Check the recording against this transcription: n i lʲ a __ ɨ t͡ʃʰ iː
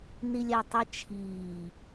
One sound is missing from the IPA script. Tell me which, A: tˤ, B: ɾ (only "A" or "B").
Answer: A